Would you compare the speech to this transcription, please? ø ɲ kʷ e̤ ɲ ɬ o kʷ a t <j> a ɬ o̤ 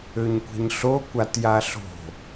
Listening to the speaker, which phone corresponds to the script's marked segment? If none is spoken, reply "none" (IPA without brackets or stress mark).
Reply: j